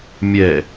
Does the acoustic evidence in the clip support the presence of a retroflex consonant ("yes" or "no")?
no